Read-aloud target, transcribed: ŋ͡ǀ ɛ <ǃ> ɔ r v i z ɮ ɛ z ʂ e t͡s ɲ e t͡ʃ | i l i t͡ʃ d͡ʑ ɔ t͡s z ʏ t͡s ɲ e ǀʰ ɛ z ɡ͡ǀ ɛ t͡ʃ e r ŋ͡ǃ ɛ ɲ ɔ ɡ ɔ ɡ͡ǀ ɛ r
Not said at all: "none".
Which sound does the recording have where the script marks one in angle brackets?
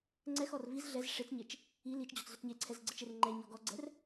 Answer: x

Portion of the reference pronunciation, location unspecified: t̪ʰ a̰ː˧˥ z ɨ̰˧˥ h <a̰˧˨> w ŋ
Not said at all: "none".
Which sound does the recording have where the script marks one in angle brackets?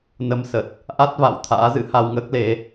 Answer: a˧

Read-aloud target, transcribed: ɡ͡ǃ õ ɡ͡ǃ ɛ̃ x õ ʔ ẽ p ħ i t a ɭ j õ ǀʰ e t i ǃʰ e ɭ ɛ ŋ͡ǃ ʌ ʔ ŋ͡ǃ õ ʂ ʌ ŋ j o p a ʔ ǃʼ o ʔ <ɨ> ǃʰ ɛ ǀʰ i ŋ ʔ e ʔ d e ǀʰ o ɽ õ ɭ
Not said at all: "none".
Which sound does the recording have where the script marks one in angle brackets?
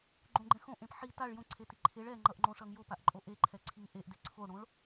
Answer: e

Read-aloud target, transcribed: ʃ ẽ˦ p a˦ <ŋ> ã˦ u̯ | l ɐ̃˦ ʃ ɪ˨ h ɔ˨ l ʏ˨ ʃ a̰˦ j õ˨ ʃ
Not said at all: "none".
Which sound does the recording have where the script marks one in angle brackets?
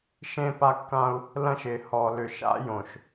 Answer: kː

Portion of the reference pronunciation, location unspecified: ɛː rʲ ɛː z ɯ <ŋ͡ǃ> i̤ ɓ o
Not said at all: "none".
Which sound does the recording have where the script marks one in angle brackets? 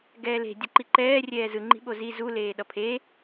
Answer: ŋ͡ǃ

